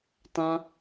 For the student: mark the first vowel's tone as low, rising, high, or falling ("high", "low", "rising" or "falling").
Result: high